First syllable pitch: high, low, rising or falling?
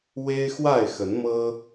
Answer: high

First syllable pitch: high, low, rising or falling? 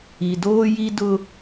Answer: low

